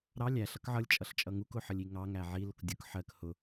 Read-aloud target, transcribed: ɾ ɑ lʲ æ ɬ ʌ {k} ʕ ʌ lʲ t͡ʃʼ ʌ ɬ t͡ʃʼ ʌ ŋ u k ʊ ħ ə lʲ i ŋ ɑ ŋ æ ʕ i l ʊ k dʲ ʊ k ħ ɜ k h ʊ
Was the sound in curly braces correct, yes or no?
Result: yes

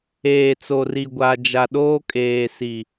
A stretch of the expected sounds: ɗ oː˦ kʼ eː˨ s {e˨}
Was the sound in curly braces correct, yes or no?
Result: no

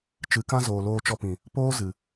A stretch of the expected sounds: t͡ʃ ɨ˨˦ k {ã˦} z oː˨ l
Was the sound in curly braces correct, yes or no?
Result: yes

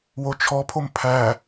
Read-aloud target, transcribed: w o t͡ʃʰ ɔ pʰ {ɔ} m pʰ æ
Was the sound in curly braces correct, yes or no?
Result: no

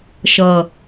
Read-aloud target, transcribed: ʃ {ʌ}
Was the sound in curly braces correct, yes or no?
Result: yes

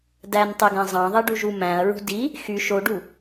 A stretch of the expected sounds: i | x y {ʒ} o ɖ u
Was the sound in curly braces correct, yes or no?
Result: no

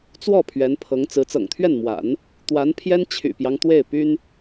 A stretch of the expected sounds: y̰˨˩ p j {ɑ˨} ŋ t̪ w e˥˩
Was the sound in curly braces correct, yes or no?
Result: no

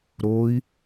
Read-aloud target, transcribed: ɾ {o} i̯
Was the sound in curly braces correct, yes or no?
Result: yes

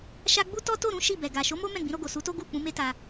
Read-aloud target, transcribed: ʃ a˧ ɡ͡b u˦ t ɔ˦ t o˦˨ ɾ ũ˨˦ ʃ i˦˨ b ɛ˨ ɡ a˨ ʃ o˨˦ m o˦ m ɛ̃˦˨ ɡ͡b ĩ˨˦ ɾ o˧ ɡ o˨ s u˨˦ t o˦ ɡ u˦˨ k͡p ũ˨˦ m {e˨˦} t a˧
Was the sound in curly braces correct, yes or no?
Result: no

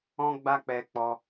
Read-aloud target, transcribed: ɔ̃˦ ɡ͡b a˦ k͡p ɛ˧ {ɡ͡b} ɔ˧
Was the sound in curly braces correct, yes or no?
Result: no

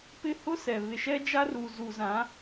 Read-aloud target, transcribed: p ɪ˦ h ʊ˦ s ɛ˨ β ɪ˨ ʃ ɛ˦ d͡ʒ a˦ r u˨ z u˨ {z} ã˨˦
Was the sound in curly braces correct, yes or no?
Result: yes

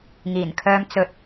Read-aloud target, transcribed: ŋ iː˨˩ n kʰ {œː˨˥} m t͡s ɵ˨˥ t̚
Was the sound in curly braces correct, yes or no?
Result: no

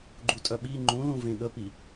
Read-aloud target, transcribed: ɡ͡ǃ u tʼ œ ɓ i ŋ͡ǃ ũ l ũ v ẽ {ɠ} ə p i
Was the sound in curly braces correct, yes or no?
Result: yes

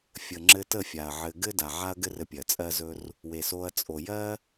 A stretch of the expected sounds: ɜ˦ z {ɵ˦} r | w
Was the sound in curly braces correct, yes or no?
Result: yes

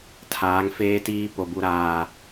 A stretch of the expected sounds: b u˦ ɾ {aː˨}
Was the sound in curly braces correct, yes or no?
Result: no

